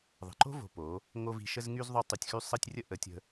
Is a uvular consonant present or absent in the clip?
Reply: absent